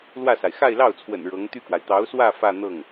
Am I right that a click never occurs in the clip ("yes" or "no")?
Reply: yes